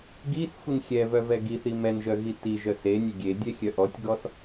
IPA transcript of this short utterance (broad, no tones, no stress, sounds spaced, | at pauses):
ɡ i s xʷ i n xʲ ɛ v œ v ɛ ɡ i θ i m ɛ n ʒ œ ɣ i t i ʒ œ s e nʲ ɛ ɡʲ e dʲ ɛ xʲ œ ʔ ɔ tʲ ɡ ɔ s